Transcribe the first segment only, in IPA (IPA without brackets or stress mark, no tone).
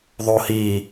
ðˤ